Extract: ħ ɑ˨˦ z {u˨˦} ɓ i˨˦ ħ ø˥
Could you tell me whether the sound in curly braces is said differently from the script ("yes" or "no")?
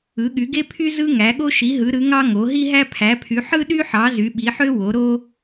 yes